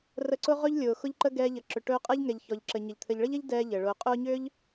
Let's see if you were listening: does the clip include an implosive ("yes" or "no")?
no